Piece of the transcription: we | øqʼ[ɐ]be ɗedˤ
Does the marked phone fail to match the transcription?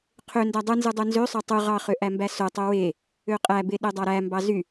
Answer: yes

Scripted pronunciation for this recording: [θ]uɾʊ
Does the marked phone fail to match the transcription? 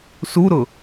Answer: yes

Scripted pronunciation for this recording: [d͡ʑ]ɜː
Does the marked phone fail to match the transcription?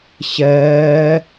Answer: yes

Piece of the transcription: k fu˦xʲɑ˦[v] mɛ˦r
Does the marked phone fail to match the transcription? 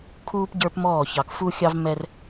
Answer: no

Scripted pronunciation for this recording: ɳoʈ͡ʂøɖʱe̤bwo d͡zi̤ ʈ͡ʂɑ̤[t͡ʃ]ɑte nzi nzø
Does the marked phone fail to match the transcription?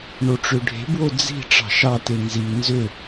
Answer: yes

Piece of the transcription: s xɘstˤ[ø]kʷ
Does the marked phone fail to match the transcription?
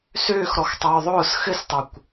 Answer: no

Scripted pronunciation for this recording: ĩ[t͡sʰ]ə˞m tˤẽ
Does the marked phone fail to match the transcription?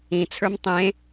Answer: no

